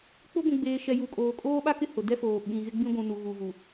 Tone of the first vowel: high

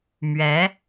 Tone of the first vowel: rising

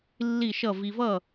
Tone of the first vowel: falling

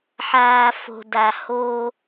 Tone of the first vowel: low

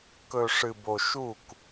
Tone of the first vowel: low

